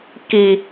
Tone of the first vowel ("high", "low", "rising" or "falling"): low